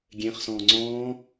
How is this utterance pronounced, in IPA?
ɡʲ ẽ χ s ɔ̃ː ŋ͡ǀ ɔ̃ː

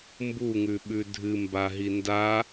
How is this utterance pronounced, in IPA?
m b u ŋ ʉ ɓ ʉ dʱ ɨ m b a ɦ i n d a

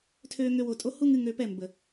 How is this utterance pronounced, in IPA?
tʰ øː˧ ŋ ø˧ w o˨ tʼ o˦ h u˦ ŋ ɨ˧ ŋ ø˧ p ɛ˦˨ m b ə˨

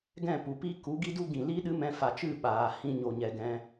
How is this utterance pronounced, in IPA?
ɡ ɛ̃˦˨ p u˨ p i˦ k u˨˦ ɡ i˦ d u˦ ɡ ĩ˨ l i˦ ɗ ɨ˦ m ɛ̃˧ f a˨ t͡ʃ ɨ˦˨ ɓ aː˨ h ĩ˧ ɲ o˨ ɲ ɛ˨ ɡ ɛ̃˧

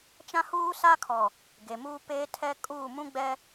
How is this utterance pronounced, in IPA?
t͡ʃ ã˦ h uː˦ s a˦ kʰ ɔ˨ | ɡ e˨ m uː˦ p eː˦ tʰ ɛ˦ kʼ uː˦˨ m ũ˦ ɡ͡b ɛ˦

